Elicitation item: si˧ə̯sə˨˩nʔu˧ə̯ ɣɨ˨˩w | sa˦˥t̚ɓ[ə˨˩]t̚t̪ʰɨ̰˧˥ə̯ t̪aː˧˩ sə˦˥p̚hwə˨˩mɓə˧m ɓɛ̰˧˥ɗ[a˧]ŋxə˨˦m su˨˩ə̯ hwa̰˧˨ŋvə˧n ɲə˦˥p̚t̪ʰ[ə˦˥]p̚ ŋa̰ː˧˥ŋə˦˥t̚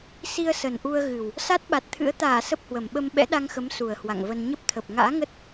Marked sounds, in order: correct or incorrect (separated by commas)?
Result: incorrect, correct, incorrect